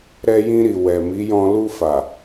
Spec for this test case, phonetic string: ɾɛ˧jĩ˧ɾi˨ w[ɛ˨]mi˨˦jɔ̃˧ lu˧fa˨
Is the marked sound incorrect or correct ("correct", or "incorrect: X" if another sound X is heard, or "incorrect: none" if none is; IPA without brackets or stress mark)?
correct